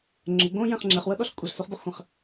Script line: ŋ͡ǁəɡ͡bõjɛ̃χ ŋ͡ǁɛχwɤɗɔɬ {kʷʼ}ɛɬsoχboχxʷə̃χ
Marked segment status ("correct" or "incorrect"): correct